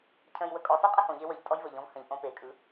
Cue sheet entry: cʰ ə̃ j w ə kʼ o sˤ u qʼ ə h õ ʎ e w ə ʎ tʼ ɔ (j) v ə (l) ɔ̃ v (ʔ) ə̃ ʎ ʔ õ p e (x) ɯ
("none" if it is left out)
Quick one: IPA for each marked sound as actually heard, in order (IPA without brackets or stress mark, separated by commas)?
j, ʎ, h, kʼ